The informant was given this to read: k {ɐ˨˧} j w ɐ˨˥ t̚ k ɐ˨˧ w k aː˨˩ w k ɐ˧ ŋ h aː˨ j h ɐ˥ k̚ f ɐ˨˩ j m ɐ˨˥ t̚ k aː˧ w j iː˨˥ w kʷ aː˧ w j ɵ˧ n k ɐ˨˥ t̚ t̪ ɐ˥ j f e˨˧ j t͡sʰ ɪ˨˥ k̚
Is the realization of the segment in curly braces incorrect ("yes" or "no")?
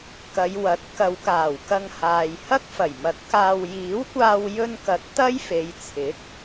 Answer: no